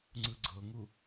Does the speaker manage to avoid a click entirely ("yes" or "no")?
no